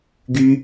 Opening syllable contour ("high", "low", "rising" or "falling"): high